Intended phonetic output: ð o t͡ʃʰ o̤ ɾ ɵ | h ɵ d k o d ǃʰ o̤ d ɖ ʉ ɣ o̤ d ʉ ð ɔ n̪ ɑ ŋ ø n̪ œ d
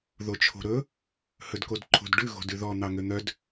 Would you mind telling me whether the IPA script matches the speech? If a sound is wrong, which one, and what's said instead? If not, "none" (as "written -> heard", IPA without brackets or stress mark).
none